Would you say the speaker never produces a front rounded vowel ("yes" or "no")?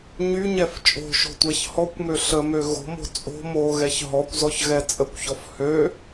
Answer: no